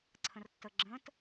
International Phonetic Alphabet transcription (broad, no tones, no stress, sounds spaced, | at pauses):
ǀʰ ə̃ r tː ə ɡ͡ǁ ə̃ t